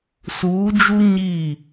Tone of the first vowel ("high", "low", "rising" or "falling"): rising